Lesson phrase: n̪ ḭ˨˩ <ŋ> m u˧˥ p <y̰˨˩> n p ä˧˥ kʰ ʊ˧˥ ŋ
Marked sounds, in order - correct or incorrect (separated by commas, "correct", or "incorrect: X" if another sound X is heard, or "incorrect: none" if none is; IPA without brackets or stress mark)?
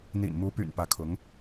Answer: incorrect: n, correct